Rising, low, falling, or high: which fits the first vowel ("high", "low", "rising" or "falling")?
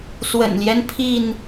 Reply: low